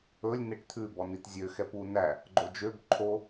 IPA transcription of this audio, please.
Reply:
ɵ lʲ n̪ e ʈ t̪ʰ ʉ b ɔ n i t zʲ ø x ɛ p u n æ | ɡ͡ǃ o d͡ʒ ø b ǃʰ o

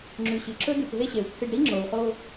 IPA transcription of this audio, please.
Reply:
ŋ͡ǁ ʉ˨ ɕ ɨ˨ ǁ ɵ˦ d̪ ɨ˨ p ɦ e˦ ɕ e˨ w t̪ʰ ɨ˨ ɖ ɾ i˦ ŋ͡ǁ o˨ w χ o˦

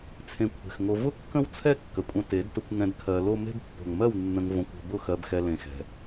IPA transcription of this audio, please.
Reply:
t͡sʰ ẽ˧ kʷʰ e̤˨ x ŋ o˧ v ʊ˦ kː ə̃˦ w t͡sʰ ɛ˦ kː ə˨ kʷʼ ə̃˧ t e˨˦ d t ʊ˧ kʷ ŋ ɛ̃˧ d kʰ ɜ˧ l o˦ m e̤˦ b pː o̤˨ ŋ m ɜ˦˨ w nː ə̃˧ ŋ v õ˧ kʷ o̤˧ b ʊ˦˨ x ɜ˧ b x ɛ˧ l ẽ˧ x ɛ̤˧

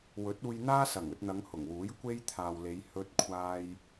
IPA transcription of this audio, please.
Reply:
w ɵ˨˥ t̚ uː˧ j n̪ aː˥ s ɐ˨˩ ŋ ɵ˧ t̚ n̪ ɐ˨˧ ŋ h ʊ˨˩ ŋ w uː˨˥ j kʷ e˥ j t̪ʰ aː˨ w l e˨˧ j h ɵ˧ t̚ kʷʰ aː˧ j

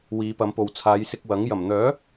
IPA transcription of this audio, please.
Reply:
w iː˨˧ p ɐ˨˧ m p o˨ w t͡sʰ aː˨˧ j s ɪ˧ k̚ w ɐ˨˥ ŋ j ɐ˨˩ m n̪ œː˨˥

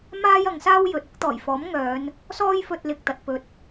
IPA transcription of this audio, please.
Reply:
m aː˥ j ɐ˨˧ ŋ s aː˥ w j ɵ˨ t̚ ʊ˨˥ k̚ t̪ ɔː˨˩ j f ɔː˨˥ m ŋ œː˨˧ n | s ɔː˥ j f ɵ˧ t̚ l ɪ˨ k̚ t̪ ɐ˨ t̚ p ɵ˨ t̚

